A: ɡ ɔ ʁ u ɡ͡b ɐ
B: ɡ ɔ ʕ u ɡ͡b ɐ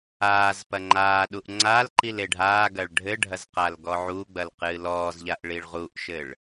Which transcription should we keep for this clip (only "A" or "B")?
B